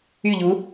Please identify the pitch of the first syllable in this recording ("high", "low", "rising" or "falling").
falling